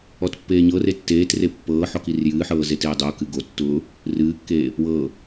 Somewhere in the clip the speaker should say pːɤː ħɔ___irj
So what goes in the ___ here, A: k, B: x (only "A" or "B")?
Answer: A